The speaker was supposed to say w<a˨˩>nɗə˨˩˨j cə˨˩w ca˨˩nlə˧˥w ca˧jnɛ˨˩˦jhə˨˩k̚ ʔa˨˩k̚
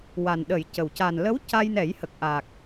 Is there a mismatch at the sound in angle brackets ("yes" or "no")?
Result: no